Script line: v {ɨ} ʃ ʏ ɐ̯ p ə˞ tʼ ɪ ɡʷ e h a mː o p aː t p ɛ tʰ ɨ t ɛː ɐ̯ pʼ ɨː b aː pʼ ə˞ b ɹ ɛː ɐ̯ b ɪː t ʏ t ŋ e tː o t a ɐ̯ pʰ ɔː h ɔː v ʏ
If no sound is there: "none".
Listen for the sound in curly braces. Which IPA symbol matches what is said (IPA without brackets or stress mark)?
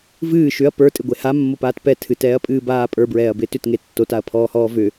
ɨː